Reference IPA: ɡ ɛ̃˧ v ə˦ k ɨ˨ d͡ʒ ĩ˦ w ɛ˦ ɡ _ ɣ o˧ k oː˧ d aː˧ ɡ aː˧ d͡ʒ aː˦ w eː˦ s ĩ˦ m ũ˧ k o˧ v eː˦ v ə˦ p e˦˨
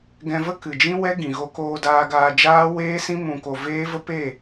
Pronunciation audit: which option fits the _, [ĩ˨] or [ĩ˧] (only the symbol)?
ĩ˨